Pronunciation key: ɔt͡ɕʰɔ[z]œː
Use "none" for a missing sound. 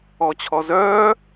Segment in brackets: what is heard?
z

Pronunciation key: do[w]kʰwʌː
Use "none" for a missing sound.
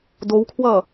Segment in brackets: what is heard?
w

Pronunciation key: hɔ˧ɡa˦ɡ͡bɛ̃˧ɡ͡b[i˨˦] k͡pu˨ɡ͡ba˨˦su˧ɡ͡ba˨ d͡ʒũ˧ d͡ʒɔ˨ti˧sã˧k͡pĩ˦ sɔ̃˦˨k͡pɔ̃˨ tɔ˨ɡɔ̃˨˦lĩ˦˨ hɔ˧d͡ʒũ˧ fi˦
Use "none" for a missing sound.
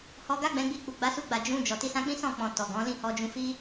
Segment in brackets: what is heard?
i˧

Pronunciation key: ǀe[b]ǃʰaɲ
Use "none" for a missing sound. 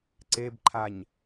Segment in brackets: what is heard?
b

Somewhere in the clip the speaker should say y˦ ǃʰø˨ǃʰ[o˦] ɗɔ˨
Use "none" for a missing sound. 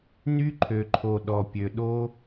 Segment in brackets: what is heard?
o˨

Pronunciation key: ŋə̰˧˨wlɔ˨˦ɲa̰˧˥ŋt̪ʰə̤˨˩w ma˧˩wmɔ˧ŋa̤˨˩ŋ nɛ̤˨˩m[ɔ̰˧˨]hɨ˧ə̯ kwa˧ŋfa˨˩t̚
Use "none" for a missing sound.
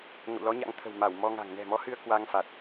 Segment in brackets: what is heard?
ɔ˨˦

